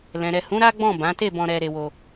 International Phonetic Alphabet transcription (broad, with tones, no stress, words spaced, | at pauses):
lɛ̃˨ɾɛ˨hũ˨˦ ɾa˦ɡ͡bɔ̃˦˨bã˨˦te˦˨ bɔ̃˧ ɾɛ˧ɾe˧wo˧